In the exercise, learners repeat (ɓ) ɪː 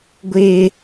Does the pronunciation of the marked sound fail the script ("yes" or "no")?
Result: yes